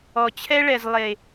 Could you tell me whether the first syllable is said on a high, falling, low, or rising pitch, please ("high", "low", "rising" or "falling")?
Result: low